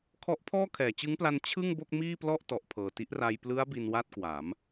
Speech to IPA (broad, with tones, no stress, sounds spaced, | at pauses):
kʰ ɔ˦˥ ʔ pʰ ɔː˥˩ kʰ ɛː˩˦ t͡ɕ ɯ˦˥ ŋ p l a˧ n t͡ɕʰ ɯ˥˩ ŋ b o˥˩ k̚ m iː˥˩ p l ɔ˥˩ ʔ t ɔ˨˩ ʔ pʰ ɤː˨˩ t i˦˥ ʔ r a˧ j p l ɯ˦˥ a̯ b i˧ n w a˥˩ t̚ k w a˩˦ m